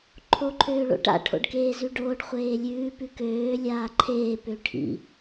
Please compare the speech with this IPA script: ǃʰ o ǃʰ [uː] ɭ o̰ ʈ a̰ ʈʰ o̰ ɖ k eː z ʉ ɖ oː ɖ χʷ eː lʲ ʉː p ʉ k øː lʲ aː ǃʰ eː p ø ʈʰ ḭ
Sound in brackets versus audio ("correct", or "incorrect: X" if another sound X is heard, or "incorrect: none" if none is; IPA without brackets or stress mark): incorrect: øː